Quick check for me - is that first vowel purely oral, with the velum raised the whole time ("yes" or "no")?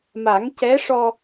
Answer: yes